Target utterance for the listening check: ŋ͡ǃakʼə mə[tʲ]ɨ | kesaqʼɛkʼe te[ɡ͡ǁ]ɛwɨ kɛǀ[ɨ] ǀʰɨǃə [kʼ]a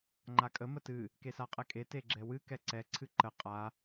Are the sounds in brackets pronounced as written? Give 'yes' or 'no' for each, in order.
no, yes, no, no

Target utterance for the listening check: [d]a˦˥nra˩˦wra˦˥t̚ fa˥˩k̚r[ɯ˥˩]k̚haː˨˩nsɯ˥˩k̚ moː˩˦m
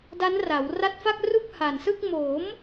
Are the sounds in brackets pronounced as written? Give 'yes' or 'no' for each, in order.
yes, no

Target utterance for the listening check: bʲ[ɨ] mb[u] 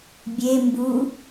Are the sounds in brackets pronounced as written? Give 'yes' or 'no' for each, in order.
no, yes

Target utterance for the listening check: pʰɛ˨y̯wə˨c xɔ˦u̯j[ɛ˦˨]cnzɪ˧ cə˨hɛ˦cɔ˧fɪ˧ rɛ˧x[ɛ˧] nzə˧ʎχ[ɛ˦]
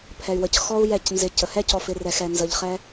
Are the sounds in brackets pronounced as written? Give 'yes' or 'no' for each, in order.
yes, yes, yes

